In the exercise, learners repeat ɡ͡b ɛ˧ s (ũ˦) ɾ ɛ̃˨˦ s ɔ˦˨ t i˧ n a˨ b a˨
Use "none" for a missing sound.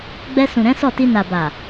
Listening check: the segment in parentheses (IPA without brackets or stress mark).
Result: ũ˨